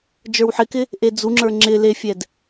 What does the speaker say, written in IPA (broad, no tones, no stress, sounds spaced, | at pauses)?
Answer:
d͡ʒ ə˞ w ħ ɪ k ɪ | ʔ e d͡z u ŋ͡ǁ ə˞ ŋ͡ǁ ɪ l e fʲ ɛ d